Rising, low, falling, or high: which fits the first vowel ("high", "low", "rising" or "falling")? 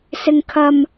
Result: high